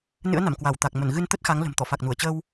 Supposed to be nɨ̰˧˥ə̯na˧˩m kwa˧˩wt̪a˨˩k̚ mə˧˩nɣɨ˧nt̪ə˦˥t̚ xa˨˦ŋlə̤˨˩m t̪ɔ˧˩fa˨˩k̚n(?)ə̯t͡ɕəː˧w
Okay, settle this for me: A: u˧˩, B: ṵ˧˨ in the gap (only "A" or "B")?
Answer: A